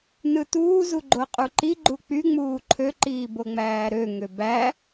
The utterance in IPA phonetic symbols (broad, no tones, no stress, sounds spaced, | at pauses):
n ɯ t uː z u ɡ͡ǃ o qʼ u ǃ i ɡ͡ǃ u k͡p y ŋ͡m uː ǃʰ ø ǃ iː b o ŋ͡m æː ɾ ø ŋ ø b æ